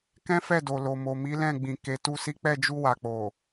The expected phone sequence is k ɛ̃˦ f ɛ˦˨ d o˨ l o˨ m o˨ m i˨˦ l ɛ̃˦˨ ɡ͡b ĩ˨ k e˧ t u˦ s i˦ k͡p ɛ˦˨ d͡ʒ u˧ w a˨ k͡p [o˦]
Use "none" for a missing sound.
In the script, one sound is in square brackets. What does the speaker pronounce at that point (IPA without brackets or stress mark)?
o˨